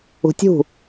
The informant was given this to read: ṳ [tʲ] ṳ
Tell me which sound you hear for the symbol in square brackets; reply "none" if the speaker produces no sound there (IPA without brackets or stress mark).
tʲ